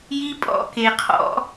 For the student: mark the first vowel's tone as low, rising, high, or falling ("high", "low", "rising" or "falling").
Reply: high